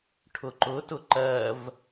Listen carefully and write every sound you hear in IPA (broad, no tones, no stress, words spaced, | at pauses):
ʈʰʊǃʊtʊ ǃɜv